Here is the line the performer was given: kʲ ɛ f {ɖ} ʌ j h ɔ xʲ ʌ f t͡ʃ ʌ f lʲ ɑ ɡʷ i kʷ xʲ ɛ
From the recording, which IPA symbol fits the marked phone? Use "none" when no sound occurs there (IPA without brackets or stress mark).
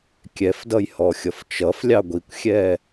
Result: d